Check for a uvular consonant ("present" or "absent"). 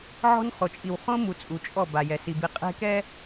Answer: present